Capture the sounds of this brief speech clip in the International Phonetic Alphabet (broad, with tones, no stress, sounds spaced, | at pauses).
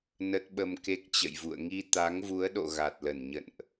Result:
n ə˦˥ t̚ ɓ ə˧ m k e˦˥ k̚ t͡ɕ ə̰˧˨ j v ṵ˧˨ ə̯ ŋ i˧ t̪ a˨˦ ŋ v u˨˦ ə̯ ɗ o̰˧˨ ɣ a˨˩ t̚ l ə˧˩ n ɲ ə̰˧˨ n ʔ